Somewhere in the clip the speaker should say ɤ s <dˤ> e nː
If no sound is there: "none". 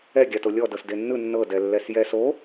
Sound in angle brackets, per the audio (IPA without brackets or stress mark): d